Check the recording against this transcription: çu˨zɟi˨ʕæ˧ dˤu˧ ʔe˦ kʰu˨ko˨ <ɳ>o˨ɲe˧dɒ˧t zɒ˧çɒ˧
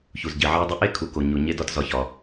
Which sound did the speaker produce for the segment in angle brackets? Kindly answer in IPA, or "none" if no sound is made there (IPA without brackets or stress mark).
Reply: ɲ